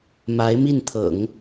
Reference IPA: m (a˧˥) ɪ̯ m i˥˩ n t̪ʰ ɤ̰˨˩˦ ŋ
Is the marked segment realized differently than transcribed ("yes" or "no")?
no